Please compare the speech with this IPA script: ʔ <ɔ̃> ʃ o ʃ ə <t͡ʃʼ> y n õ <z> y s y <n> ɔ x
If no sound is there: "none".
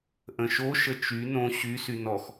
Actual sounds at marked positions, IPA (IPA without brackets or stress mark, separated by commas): ə̃, t͡ʃ, ɕ, n